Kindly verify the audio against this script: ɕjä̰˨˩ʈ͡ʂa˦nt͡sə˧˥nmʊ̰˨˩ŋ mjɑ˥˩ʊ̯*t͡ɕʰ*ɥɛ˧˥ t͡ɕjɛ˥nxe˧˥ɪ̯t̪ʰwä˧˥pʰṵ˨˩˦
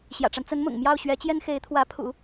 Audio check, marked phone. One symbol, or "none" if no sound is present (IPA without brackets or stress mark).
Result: ɕ